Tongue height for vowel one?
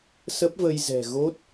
mid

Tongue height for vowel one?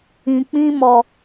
high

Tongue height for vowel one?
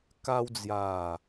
low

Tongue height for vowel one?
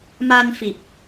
low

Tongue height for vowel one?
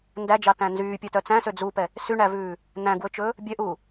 low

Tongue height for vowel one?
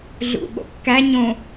high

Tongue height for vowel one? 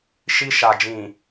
high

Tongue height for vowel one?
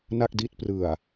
low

